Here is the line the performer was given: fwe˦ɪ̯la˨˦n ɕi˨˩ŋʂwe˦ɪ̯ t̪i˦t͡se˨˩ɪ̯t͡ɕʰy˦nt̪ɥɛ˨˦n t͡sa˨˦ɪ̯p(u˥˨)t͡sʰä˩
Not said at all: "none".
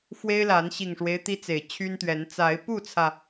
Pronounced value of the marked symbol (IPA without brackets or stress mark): u˥˨